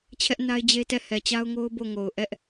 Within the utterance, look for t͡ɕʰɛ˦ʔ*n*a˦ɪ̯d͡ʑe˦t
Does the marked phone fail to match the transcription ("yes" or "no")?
no